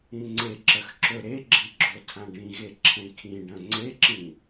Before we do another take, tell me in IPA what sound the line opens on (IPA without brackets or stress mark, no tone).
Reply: ĩ